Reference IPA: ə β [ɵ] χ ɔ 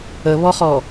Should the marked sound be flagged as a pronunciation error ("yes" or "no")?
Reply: yes